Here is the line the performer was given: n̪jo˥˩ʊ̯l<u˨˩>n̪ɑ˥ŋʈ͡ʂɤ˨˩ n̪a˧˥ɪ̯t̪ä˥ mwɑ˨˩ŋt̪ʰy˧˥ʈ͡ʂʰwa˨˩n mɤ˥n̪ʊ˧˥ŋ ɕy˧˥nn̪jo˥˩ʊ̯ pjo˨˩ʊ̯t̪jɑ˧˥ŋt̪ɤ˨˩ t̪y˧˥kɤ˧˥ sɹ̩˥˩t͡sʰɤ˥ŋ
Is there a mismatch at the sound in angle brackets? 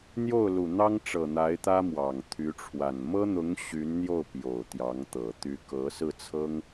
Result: no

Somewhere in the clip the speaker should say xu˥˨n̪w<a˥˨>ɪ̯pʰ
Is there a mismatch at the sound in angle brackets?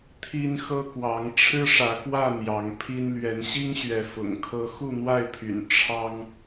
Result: no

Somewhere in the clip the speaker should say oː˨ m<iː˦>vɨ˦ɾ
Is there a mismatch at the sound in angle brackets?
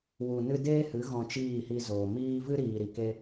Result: yes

